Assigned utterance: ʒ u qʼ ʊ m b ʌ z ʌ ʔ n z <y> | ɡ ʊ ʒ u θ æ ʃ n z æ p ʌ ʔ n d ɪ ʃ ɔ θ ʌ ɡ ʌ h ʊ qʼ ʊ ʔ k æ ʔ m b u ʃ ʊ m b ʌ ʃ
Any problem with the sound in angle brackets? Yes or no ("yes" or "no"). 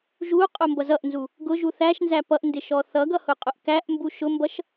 yes